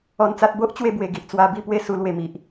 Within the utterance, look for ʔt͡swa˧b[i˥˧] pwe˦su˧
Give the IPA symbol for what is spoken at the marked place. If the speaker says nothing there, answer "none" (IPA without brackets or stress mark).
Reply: i˥˧